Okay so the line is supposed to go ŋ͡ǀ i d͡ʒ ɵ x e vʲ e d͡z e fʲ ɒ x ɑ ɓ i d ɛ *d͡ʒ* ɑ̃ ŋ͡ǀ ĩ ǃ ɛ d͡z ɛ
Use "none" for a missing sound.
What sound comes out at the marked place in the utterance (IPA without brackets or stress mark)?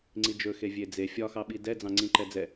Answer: d͡z